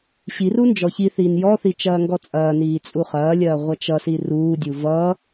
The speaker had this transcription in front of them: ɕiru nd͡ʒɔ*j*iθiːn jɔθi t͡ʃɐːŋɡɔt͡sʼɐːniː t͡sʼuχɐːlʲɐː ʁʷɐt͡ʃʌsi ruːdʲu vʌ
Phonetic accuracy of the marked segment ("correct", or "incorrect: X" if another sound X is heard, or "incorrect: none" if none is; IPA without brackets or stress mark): incorrect: ç